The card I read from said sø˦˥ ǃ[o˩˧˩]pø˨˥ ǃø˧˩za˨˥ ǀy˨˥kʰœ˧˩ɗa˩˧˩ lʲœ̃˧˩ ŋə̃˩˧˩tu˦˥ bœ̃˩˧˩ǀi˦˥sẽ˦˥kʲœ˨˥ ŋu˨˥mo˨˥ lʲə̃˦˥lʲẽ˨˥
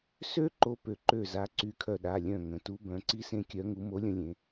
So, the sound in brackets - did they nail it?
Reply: no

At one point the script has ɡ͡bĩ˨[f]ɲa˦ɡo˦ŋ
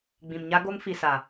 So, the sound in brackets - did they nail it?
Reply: no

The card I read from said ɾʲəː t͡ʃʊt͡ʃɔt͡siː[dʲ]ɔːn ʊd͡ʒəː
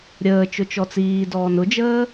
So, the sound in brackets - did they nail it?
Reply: no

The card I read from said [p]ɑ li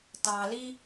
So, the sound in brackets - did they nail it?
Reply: no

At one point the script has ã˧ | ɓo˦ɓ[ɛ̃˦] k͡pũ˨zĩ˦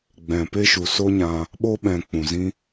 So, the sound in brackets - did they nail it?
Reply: no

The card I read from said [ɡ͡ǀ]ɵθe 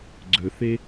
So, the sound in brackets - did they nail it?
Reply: yes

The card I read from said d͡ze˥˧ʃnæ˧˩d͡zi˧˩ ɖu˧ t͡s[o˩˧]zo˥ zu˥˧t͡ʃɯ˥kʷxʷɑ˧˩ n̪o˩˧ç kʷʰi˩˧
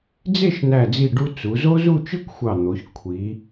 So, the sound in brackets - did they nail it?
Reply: no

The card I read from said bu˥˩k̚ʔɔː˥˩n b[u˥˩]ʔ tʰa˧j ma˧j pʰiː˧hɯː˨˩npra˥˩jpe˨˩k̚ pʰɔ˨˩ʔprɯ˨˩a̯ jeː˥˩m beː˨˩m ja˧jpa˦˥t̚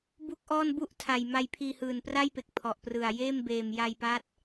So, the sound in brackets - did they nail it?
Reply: yes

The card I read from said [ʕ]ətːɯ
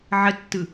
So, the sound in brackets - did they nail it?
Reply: yes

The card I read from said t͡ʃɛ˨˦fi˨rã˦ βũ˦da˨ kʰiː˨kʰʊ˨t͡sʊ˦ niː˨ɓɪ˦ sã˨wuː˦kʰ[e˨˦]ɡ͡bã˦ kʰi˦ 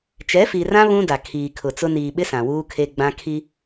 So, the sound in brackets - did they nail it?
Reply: no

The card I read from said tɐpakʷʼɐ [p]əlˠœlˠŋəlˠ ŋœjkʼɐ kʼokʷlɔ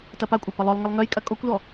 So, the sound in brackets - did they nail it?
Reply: yes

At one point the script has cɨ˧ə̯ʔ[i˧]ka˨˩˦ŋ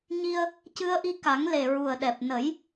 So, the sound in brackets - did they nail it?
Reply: yes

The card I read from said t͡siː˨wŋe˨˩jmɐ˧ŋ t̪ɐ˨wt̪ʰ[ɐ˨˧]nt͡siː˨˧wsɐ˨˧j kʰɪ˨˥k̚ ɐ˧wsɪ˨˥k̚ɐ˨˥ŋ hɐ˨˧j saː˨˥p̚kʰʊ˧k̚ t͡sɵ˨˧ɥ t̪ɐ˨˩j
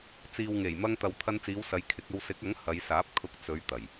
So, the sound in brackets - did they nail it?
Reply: no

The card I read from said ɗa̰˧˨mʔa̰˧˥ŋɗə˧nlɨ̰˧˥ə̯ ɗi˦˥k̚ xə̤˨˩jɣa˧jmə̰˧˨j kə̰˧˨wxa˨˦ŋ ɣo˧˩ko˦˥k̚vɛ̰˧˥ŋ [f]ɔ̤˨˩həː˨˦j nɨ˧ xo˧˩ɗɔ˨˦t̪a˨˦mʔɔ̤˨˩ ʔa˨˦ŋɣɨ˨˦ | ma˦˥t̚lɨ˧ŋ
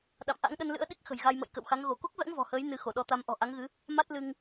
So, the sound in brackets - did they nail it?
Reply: no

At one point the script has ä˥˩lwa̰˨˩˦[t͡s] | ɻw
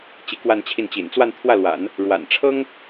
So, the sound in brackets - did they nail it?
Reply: no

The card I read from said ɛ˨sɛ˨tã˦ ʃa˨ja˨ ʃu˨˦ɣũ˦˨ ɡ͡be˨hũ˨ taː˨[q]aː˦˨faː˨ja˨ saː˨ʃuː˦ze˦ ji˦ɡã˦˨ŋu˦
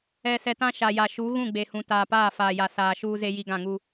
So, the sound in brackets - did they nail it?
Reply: no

